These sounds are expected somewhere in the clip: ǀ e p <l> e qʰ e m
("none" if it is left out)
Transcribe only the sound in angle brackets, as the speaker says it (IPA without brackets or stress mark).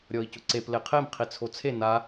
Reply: l